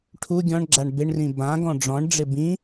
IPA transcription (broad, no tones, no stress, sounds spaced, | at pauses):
ʈʰ u ɡʲ ɔ̃ ɳ ɡ͡ǁ a ɳ b ɪ ɳ r ĩ b ã ɡ ɔ̃ ɖ͡ʐ ɔ̃ ɳ ɖ͡ʐ ɪ b ĩ